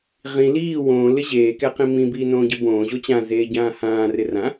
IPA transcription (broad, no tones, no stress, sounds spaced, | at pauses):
ʁ ĩ l iː w õː l ɪ ʑ eː k ɛ q ĩ m ĩ b iː n õː ɟ ɪ b õː ʑ o t͡ɕ ã z eː ɟ ãː h ãː r ɪ r ã